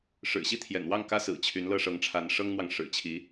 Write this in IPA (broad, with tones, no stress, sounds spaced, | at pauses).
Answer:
ʂ ɻ̩˨˩ ɕ i˥˨ t̪ʰ j ɛ̰˨˩ n w ɑ˥˨ ŋ k ä˦ s ɹ̩˨˩ t͡ɕʰ y˨˦ n l ɤ˥˨ ʂ ɤ˨˦ ŋ ʈ͡ʂʰ a˨˦ n ʂ ɤ˦ ŋ n̪ w ɑ˨ ŋ ʂ ɻ̩˨˩ t͡ɕʰ i˨˦